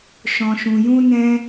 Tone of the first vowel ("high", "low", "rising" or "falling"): low